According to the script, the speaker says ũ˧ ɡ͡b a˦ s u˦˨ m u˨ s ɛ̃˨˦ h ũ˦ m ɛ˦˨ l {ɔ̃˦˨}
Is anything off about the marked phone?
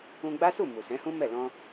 yes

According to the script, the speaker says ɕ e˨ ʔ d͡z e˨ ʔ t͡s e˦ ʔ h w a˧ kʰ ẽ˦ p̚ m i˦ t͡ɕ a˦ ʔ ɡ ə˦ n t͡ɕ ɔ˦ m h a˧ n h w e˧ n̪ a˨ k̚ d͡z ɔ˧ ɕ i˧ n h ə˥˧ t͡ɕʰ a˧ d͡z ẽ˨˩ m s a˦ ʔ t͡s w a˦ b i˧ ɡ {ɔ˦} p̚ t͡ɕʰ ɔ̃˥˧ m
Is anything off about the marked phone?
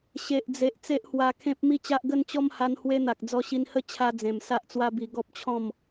no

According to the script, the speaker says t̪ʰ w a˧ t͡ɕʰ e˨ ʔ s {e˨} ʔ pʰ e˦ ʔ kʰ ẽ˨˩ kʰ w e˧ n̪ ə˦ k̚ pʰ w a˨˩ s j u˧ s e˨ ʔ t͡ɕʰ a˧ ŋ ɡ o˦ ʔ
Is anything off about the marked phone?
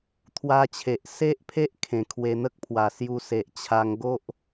yes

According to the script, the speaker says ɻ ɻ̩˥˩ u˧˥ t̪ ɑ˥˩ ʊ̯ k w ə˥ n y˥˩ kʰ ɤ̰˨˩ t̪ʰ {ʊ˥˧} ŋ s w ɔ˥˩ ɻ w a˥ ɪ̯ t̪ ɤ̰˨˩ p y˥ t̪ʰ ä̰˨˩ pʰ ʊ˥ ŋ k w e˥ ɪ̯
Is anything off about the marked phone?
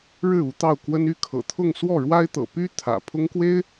no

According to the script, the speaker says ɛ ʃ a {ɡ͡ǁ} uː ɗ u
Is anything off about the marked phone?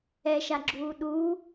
no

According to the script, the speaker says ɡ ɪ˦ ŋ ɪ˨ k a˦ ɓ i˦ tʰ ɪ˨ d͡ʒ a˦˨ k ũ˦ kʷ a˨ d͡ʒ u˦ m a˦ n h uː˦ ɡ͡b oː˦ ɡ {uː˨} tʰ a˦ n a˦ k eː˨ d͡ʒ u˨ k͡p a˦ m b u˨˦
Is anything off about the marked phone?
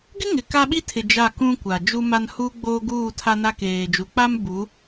yes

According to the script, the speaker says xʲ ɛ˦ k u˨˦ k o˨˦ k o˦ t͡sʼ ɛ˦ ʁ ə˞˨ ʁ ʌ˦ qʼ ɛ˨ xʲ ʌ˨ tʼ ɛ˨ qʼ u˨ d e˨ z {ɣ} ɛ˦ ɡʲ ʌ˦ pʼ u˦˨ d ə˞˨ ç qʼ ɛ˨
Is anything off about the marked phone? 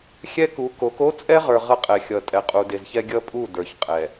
yes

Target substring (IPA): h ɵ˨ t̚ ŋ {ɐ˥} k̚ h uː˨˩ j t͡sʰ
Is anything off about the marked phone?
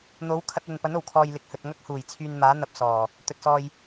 no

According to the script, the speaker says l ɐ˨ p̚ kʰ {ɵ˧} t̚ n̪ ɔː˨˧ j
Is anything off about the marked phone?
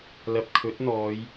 yes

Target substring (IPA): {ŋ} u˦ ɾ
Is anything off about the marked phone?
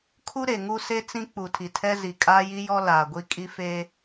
yes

